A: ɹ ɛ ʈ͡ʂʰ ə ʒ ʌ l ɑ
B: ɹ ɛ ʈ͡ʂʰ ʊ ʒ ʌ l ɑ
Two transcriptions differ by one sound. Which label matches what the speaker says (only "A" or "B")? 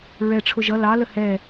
B